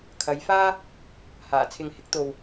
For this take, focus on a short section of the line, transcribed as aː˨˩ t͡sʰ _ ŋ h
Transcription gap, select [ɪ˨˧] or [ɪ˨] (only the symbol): ɪ˨